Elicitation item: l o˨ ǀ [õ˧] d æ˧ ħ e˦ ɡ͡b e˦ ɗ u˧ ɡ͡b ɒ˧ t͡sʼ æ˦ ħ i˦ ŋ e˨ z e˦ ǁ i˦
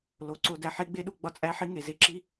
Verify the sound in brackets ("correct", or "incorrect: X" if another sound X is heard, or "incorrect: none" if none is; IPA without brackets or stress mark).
incorrect: o˧